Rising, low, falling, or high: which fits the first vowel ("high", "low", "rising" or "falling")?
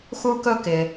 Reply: high